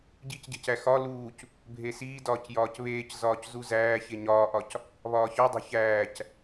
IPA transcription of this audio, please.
ɟ i c ɟ e̤ c æ x ɒ l uː c | bʱ e s iː d ɒː c j ɒː c β eː c z ɒː c z u z æː ç e ɲ ɒː ʔ ɒ c | β ɒː ç ɒ dˤ o̤ ç æː c

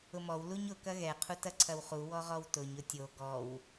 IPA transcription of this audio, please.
ʊ m ɔ w l u ɲ ʊ k ɐ ɣ ɛ qʰ u t ɐ ǀʰ ɐ w χ u w ɔ ʁ ɔ w t ʊ ɲ ʊ tʲ o ɡ ɔ w

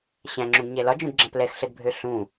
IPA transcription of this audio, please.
ɕ æ̃ ŋ͡ǁ ũ ɡ ɲ ɛ l ɒ d͡ʒ ũ d ɡ͡ǁ ã p l ɛ x ɬ ə d bʱ ø ɬ ũ

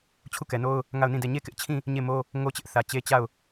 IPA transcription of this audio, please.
t͡ɕʰ u˦˨ k ɛ˨ n o˦ ʊ̯ | ŋ a˦˨ ʊ̯ n ĩ˦˨ d ɛ˦˨ ɲ e˦˨ k ɪ˦ ʔ t͡ɕʰ ĩ˦˨ | ɲ e˦˨ m o˦ | ŋ o˦ t͡ɕ ɪ˦ ʔ θ ä˨ t͡ɕ e˦ t͡ɕ a˦˨ ʊ̯

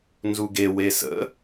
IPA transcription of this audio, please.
n z u ɡ e w e s ə̰

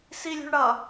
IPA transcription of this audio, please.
s i lʲ ṳ ɳ ɽ ʌ

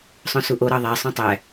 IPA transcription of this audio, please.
sˤ õ s u ʔ o ɾ ɑ ðˤ æ sˤ ũ tˤ æ

